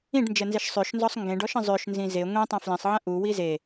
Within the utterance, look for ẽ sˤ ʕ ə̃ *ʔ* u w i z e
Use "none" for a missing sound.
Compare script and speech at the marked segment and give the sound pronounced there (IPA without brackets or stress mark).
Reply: ʔ